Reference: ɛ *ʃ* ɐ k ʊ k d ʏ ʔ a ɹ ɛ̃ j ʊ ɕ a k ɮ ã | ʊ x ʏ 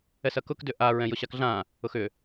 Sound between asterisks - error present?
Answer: yes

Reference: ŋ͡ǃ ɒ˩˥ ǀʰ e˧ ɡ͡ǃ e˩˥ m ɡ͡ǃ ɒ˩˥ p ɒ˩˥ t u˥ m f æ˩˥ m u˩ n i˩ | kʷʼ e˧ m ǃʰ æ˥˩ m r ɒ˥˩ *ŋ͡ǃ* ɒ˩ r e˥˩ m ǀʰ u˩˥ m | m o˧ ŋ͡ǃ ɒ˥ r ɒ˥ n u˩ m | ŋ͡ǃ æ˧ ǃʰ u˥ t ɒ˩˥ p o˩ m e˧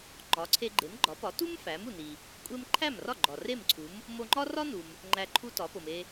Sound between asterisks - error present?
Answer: yes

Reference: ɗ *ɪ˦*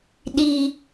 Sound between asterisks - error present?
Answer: yes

